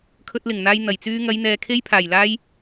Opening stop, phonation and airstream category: aspirated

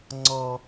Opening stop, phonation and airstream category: click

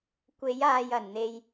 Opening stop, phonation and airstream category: plain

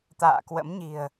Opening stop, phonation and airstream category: plain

